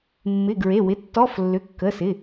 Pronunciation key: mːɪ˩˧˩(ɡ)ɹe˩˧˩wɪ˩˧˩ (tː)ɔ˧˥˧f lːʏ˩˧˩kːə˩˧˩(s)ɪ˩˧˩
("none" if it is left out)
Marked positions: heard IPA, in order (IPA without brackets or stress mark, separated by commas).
ɡ, tː, s